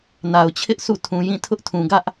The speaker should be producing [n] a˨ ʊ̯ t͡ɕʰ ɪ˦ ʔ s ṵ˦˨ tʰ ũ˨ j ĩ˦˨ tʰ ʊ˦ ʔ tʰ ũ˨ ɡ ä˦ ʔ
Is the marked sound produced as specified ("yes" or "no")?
yes